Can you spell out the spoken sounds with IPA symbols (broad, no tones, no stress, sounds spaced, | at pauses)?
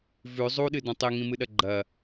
v ʉ zˤ u ɗ ɨ d õ tˤ e ŋ ĩ m ɨ ɗ ɐ ɡ͡ǃ ɐ